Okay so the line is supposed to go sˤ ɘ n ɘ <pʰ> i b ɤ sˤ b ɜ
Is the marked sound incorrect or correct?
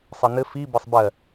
incorrect: f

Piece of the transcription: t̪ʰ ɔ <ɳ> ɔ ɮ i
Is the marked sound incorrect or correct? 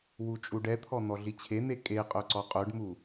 incorrect: n̪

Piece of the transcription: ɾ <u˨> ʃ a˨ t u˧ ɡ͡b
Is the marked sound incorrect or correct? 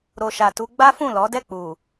incorrect: o˨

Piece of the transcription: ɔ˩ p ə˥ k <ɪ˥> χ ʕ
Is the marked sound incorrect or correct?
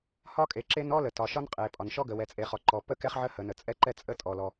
incorrect: ɛ˥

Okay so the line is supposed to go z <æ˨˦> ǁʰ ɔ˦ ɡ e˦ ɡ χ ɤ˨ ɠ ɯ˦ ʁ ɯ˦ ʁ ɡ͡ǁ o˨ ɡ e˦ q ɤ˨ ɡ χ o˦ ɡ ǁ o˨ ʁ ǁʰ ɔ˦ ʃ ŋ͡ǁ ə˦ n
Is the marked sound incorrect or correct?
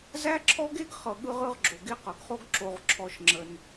incorrect: æ˦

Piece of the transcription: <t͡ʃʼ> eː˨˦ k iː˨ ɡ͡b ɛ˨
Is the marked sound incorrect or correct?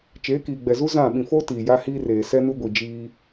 incorrect: t͡ʃ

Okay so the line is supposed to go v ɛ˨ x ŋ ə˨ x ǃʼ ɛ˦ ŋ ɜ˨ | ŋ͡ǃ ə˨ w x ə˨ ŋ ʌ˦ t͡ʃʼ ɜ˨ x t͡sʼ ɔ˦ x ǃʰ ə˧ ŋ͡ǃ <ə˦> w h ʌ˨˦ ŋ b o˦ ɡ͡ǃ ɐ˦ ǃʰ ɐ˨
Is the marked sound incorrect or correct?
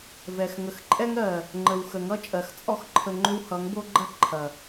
incorrect: ʏ˦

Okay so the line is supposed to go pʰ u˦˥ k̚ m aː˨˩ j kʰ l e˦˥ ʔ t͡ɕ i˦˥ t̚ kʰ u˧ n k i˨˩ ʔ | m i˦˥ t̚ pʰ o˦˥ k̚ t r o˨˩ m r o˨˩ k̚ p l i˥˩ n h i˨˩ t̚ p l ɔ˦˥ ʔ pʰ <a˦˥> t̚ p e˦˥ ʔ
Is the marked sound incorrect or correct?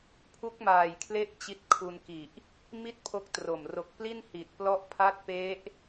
correct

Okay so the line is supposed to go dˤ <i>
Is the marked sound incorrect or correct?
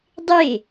incorrect: e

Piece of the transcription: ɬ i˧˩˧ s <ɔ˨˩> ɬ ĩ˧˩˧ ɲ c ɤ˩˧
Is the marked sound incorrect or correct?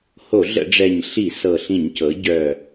incorrect: ɤ˨˩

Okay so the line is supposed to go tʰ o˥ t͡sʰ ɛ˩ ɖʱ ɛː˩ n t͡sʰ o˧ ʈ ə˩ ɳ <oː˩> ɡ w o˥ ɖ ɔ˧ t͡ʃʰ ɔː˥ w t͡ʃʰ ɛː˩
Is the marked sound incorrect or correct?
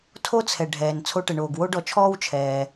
correct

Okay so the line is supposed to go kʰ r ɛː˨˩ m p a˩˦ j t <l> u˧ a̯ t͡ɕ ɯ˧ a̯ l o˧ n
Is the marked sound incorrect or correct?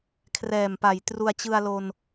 incorrect: r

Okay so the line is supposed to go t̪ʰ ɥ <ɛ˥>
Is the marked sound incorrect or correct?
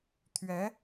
incorrect: ɛ˧˥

